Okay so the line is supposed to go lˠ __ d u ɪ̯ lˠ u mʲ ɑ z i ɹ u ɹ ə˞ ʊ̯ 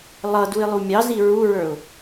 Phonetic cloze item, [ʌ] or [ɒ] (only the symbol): ʌ